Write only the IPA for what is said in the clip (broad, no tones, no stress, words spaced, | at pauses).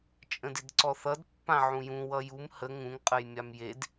t͡ʃʼə̃dɪdǀɔθʌd pːãʕũjũ wʌjum hə ŋũŋ qʼəjmʲamjed